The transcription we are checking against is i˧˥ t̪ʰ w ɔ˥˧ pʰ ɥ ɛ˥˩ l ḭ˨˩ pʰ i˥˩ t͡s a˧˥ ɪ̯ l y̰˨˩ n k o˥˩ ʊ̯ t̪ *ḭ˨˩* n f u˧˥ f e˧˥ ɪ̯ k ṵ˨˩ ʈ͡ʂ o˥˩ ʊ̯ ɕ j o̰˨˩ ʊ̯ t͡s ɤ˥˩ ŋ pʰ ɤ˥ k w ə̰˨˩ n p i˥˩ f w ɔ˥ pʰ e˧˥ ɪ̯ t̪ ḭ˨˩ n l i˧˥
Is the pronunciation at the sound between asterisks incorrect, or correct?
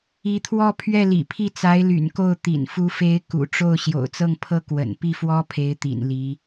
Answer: correct